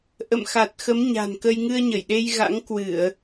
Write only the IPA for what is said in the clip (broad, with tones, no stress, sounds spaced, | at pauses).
ʔ ə̰˧˨ m x a˨˩ t̚ x ə˨˦ m ɲ a̤˨˩ n k ə˧ j ŋ ɨ˧ ə̯ ɲ ə˧˩ j ɗ e˧ j ɣ a̰˧˥ ŋ k w ɨ˧˩˨ ə̯